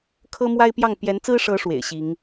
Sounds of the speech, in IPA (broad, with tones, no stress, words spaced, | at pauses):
kʰɤ˦mwa˦ɪ̯pjɑ˥˨ŋ pjɛ˨˦nt͡sɹ̩˦ʂɤ˨˦ ʂwḛ˨˩ɪ̯ɕi˨˦ŋ